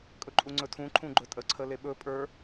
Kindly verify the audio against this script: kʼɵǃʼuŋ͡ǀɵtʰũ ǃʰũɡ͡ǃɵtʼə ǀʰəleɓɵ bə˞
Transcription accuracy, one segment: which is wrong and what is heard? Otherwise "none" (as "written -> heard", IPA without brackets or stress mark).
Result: b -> pʼ